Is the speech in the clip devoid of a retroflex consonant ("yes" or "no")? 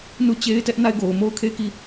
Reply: yes